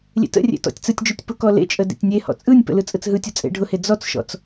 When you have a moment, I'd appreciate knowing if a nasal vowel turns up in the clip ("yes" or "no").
no